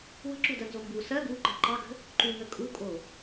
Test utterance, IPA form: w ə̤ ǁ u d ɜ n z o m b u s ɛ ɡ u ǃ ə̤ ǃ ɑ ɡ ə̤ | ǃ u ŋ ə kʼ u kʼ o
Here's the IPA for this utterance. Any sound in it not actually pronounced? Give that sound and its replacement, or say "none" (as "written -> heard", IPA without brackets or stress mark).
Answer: ɛ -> ɜ